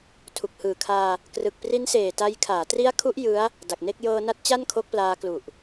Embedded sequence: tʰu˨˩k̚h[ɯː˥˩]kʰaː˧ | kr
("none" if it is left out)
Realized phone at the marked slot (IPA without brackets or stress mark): ɯː˨˩